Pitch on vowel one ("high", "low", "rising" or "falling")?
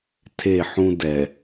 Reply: falling